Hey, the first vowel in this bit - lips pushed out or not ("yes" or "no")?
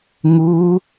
yes